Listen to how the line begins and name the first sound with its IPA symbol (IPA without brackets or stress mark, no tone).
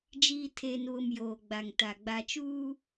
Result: d͡ʒ